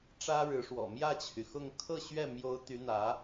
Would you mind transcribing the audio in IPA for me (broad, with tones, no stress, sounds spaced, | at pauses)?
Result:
ʈ͡ʂ ä˥ ɻ ɻ̩˧˥ ʂ w ɔ̰˨˩ m j ä˥˩ t͡ɕʰ y˩ x ʊ˥˧ ŋ kʰ ɤ˥˧ ɕ ɥ ɛ˥˩ m j o˧˥ ʊ̯ t̪ y˧˥ n̪ ä˧˥